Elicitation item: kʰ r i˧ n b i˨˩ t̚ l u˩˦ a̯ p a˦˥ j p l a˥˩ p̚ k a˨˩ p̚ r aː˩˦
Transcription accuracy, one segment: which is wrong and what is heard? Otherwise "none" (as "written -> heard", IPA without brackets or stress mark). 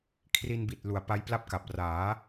none